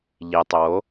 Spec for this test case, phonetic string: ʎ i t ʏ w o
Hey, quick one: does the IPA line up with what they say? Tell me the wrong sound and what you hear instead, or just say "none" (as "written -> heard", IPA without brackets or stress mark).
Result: t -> tˤ